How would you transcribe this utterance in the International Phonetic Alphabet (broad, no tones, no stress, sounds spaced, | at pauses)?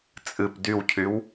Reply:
t͡sʼ ɨ p d y w cʰ y w